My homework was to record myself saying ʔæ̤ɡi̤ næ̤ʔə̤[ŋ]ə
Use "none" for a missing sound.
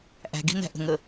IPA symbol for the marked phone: ŋ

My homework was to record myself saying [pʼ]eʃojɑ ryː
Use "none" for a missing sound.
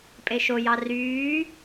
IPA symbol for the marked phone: pʼ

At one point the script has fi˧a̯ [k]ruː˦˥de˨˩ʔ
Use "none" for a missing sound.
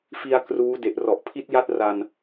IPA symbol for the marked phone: k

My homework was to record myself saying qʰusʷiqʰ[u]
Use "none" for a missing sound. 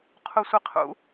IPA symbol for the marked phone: ṵ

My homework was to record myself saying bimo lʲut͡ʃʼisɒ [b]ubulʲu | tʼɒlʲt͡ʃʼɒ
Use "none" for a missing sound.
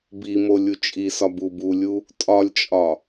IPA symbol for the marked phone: b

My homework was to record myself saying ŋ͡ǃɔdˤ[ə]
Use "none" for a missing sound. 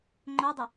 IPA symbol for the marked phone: ə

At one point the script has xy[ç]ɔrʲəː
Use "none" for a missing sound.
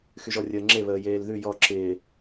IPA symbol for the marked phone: ʒ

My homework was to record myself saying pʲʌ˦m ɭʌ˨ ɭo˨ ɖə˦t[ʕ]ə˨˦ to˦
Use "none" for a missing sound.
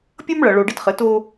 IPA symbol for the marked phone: χ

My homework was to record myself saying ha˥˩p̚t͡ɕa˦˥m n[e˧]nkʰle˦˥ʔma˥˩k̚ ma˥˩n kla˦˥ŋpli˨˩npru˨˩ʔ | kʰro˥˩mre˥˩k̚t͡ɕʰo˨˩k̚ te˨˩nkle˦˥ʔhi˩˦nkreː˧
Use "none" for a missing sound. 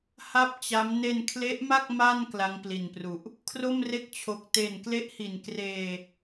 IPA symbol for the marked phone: e˧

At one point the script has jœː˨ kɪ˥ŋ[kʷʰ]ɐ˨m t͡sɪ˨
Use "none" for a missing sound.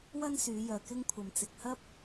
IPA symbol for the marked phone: kʷʰ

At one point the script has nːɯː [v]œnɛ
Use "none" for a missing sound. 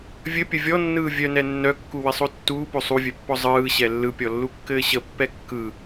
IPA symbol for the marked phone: vʲ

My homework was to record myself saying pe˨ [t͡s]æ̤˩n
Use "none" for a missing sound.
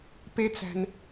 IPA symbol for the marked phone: t͡s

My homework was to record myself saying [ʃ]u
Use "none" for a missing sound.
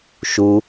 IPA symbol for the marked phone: ʃ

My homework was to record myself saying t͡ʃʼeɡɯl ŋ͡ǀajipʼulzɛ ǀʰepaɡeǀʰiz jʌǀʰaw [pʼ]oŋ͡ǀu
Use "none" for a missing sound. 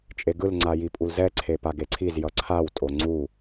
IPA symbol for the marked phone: tʼ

